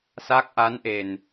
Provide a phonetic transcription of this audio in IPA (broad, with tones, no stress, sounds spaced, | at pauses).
s aː˦˥ k̚ ʔ a˧˥ n ʔ e˨˩ n